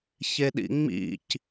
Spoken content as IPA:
ç e ɗ ḭ ŋ͡m ḭ c

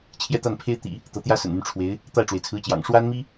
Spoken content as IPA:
t͡ɕʰ j ɛ˥˧ t̪ a˥˩ n pʰ e˥ ɪ̯ t̪ ḭ˨˩˦ | t̪ ɤ˧˥ t̪ j ä˥ s ə̰˨˩ n m y˦ n ʈ͡ʂʰ w e˧˥ ɪ̯ | t̪ a˥˩ ɪ̯ ʈ͡ʂ w e˩ ɪ̯ t͡sʰ ɹ̩˧˥ t͡ɕ j ɑ̰˨˩ ŋ ʂ w a˥ n m i˥

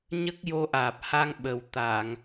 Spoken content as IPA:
ɲ ə˦˥ k̚ j o˧ ʔ aː˨˩ p̚ h a˧ ŋ ɓ ə˨˩ w t̪ a˨˩˨ ŋ

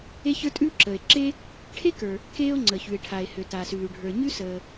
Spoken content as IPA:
e˥ ç ə˞˥ tʼ ʉː˥ ǁ əː˩ e̯ ǁ e˥ | ʈʰ e˥ k ə˞˩ | k eː˥ o̯ ŋ͡ǀ ə˩ ç ʉ˩ e̯ ʈʰ a˩ e̯ h ø˩ t a˩ s ʉː˩ ɖʱ ə˞˩ ɲ ʉ˥ s əː˩

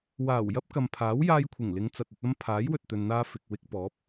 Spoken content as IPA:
w aː˨˩ w j ɐ˥ p̚ k ɐ˨ m pʰ aː˨˥ w j aː˧ j kʷʰ ɪ˨˩ ŋ l ɪ˨˧ ŋ t͡s ɐ˨ t̚ ɵ˧ t̚ ɐ˥ m pʰ aː˨˥ j w ɵ˨ t̚ t̪ ɵ˨ n n̪ aː˧ f ɪ˨ k̚ w ɪ˧ k̚ p ɔː˨˥ p̚

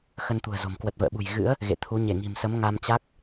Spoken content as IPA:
x ə˧ n t̪ ṳ˨˩ ə̯ z o̤˨˩ m k w ə˨˩ t̚ v ə̰ː˧˨ ɓ ṳ˨˩ j ɣ ɨ̰˧˥ ə̯ | ɣ ḛ˧˨ t̪ʰ u˨˦ ɲ e˧˩ ŋ i̤˨˩ m s ə˨˦ m ŋ a˧ m t͡ɕ a˦˥ k̚

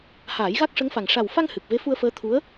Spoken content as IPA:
h aː˨˩˦ j ɣ a˦˥ k̚ ʂ ə˧˥ ŋ f a˨˩ ŋ ʂ a˨˩ w f a˧ ŋ h ɨ˨˩ k̚ v e˧˥ f u˧ ə̯ f əː˧˥ t̪ʰ u˧˥ ə̯

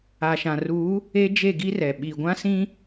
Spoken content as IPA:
a˨ ʃ ã˨ r uː˨˦ | e˦ d͡ʒ e˦˨ ɡ i˦ r ɛ˨ ɓ i˨ ɡʷ ã˦ s ĩ˦

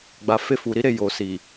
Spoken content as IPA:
ɡ͡b a˨ f e˧ f u˨ ɾ i˨˦ ɾ e˧ j o˨ s i˨

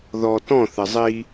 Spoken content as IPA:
ð ɔ t ɔ̃ θ ɘ zˤ i

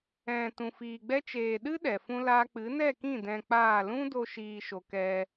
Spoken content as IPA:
ɛ̃˨ t ũ˨ f iː˨ ɡ͡b ɛ˦ t͡ʃ eː˨ ɗ ɨ˦ ɗ ɛ˨ f ũ˦ l aː˦ k͡p ɨ˨˦ n ɛ˦˨ k ĩ˦˨ d ɛ̃˧ k͡p aː˦˨ l ũ˦ d o˧ ʃ iː˧ ʃ o˨ k ɛ˧

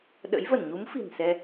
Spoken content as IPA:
ɗ ə̰˧˥ j v ə˧˩ n ɲ u˨˦ m f i̤˨˩ n s ɛ˧

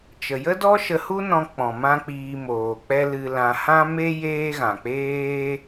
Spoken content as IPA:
t͡ʃ ə˨ j ə˦ d ɔ˦ ʃ ə˧ h u˦ n ɔ̃˧ k͡p ɔ̃˨ m ã˦ k͡p iː˧ m oː˨ k͡p ɛ˦ l ɨ˧ l ã˧ h ã˦ m e˦ j eː˦ ɣ ã˨ k͡p eː˦

